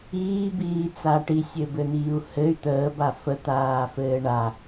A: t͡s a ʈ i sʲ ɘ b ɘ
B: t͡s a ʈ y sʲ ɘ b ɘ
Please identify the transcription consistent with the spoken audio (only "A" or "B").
A